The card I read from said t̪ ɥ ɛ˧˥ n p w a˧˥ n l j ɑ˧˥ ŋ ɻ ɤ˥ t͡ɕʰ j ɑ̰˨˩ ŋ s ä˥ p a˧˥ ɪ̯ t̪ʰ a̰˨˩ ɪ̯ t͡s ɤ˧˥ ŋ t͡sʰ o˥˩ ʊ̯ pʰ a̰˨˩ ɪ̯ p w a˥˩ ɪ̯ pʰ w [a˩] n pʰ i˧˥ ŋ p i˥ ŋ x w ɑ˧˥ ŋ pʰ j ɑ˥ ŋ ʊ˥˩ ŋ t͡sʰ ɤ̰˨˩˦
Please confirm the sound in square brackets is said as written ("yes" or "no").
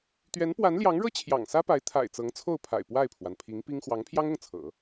yes